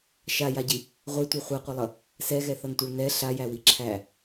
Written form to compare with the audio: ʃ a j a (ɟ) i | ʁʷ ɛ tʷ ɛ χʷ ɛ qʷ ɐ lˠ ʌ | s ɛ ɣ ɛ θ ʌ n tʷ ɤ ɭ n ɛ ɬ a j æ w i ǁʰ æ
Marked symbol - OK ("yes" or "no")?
yes